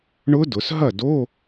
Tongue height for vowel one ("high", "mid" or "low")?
high